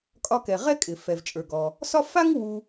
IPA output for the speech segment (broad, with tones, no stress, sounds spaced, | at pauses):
kʼ ɒ˧ k ɛ˩ ʁ ɛ˥ kʼ ɪ˩ f ɛ˩ v t͡ʃʼ ə˞˩ ɡ ɔ˩ | s ɒ˥ f a˥ ŋ w u˧